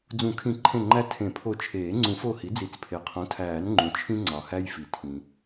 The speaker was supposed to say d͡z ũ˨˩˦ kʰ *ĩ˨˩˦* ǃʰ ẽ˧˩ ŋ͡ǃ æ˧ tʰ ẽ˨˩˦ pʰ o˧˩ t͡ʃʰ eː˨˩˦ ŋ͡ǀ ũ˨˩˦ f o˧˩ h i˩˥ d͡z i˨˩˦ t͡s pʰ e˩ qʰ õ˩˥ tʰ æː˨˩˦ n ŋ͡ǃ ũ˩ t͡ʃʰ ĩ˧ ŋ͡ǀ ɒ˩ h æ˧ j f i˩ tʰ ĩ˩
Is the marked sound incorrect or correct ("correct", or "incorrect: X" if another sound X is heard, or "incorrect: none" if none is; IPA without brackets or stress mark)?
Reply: correct